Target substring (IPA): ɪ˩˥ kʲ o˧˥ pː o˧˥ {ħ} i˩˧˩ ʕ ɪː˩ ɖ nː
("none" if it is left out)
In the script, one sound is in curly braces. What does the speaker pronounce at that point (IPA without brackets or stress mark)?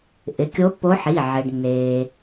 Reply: ħ